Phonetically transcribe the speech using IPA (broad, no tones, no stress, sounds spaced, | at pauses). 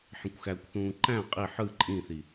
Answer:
ħ ĩ kʷ x æ kʷ θ ũː ǃ æ̃ qʼ i ħ ɯ ǃʼ ĩ θ i